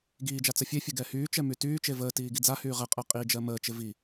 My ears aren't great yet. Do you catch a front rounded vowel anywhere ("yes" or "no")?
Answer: yes